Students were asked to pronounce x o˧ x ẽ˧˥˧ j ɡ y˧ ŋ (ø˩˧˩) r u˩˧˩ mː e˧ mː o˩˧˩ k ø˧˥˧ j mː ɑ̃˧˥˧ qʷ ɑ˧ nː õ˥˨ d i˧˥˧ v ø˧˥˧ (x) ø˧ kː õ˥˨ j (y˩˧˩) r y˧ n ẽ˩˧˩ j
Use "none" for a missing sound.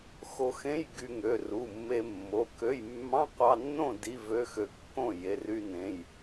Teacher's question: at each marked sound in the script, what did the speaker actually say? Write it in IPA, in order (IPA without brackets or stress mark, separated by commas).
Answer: ø˩˧˩, x, e˩˧˩